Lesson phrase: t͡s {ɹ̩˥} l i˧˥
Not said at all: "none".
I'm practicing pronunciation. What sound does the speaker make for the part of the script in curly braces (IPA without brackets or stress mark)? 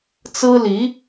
ɹ̩˥